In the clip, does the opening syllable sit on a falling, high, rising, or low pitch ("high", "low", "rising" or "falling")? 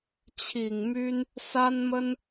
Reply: low